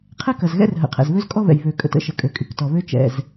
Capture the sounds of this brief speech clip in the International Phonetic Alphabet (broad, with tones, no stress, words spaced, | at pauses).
qʰɛ˥kɐ˩zɣɛ̰˥r ɦə̰˩qʰɛ̰˩zβø˥z kʼɔ˥βɛ̰˩j βø˩kʼə̰˩tə̰˥ ʃə˩kʼø˩kʼy˩k tɔ˩βø˥ t͡ʃɛ̰˩z